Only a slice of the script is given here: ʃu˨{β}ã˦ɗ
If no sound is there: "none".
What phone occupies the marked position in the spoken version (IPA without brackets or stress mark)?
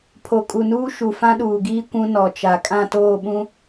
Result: f